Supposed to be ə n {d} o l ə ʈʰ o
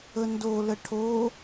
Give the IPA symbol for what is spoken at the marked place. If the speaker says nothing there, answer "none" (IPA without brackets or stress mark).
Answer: d